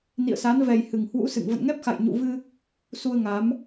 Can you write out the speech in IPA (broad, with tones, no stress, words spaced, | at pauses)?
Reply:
nḭ˧˨ə̯sa˨˦nvɛ˨˩j hɨ˨˩ŋhwṵ˧˥ sɨ̰˧˨ŋ və̰˧˨nŋɛ˦˥p̚xa̰˧˨j ɲṵ˧˨vɨ˧ | su˧ə̯ŋa˨˦m